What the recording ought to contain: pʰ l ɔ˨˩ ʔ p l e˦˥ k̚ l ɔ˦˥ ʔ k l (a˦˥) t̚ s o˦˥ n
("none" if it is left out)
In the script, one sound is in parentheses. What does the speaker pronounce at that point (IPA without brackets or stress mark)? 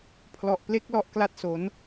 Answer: a˥˩